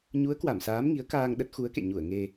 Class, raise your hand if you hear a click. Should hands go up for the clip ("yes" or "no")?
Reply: no